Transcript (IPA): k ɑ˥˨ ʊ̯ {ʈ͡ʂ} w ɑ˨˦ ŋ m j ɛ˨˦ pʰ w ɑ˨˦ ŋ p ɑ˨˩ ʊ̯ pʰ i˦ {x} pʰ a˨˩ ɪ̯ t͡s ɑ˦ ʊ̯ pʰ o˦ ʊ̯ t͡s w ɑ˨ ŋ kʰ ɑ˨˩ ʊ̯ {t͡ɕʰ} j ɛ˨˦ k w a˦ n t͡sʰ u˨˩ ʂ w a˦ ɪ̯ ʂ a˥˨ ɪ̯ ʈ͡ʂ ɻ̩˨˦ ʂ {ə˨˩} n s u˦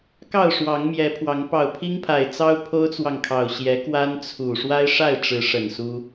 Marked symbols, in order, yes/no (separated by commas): no, no, no, yes